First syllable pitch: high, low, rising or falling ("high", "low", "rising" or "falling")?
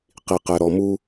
low